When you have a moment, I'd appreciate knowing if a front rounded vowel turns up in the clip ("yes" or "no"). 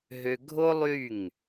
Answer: yes